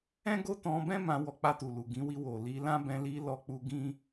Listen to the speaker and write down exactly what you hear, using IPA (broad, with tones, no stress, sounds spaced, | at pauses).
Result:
ɛ̃˦ ɡ o˦ t ɔ̃˧ b ɛ̃˦ m ã˧ w ɔ˧ k͡p a˧ t u˨ l u˨ ɡ ĩ˨˦ w i˧ w o˨ l i˧ l ã˦ b ɛ̃˧ l i˧ l ɔ˧ k͡p u˧ ɡ ĩ˦